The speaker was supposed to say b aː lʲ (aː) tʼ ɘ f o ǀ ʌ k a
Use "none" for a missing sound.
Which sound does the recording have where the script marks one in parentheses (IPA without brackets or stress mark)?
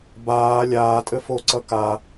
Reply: aː